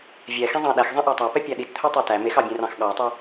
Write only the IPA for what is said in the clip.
vʲ ɛ x ẽ zˤ ɑ̃ ɗ æ x zˤ ɛ̃ ʔ æ tˤ æ p ɛ pʲ æ ɗ i t t̪ʰ ɵ tˤ ɛ t æ m e x ɑ bʲ ẽ r ɑ̃ x ɠ ɑ tˤ ɵ

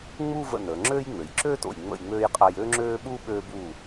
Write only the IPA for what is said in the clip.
ŋ͡m u˥˧ v ə̰˧˩ n əː˩˧ ŋ͡ǁ øː˥ j ŋ͡m ø˩˧ j ǁ øː˥ t o̰˧˩ j ŋ͡m ə̰˧˩ j ŋ͡m øː˧ j qʼ a˧ j øː˥ ŋ͡ǁ øː˥ ɓ uː˥ ɓ øː˧ b uː˧˩

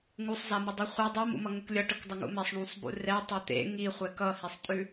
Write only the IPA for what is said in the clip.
ŋ u sˤ z a m ə dˤ i χʷ e dˤ i m ṵ m ʌ ŋ ʊ k lʲ ʌ ʈ ə k dˤ ə ŋ ṵ m ɛ sˤ ɳ ũ sˤ b ṵ r ɛ tˤ ɛ t̪ ḛ ŋ i χʷ ɛ k ʌ h i sˤ tʼ ʉ

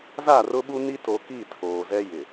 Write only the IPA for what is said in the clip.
z a˦˨ r ʊ˦ ɓ u˦ n i˦ t o˨ k i˦˨ tʰ oː˨ z ɛ˦ j ɪ˨

